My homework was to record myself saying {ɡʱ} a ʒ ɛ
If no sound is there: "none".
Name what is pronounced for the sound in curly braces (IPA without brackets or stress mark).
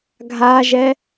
ɡʱ